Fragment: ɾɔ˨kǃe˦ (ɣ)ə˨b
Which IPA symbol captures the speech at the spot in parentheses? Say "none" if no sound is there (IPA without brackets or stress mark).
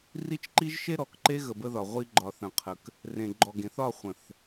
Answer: ɣ